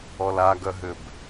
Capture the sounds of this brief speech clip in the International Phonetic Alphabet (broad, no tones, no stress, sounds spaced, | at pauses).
ɔ l a ɡ œ ɦ ʏ b